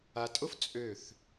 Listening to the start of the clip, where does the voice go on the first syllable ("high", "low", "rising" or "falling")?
low